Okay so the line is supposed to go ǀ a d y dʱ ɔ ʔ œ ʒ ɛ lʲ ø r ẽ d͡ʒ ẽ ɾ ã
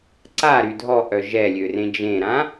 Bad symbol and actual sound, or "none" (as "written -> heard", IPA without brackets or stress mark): d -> ɾ